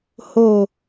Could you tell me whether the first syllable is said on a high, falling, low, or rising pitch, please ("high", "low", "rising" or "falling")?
low